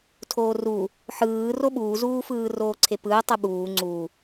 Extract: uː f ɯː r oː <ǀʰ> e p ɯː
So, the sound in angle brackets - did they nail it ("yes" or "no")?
yes